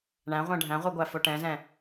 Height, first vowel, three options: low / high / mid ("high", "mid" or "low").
low